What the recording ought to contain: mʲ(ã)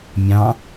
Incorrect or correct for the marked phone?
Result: incorrect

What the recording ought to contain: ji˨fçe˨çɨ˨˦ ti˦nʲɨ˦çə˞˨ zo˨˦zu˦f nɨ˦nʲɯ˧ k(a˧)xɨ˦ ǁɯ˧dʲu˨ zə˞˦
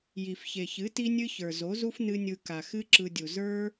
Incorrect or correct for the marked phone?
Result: incorrect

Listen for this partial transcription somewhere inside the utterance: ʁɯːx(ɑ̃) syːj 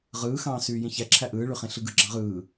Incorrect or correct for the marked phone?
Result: incorrect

